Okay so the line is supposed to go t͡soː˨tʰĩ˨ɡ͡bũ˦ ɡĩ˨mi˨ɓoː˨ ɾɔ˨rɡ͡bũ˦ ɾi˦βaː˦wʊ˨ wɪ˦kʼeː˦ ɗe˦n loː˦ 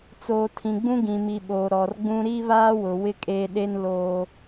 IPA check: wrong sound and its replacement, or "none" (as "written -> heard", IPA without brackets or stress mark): none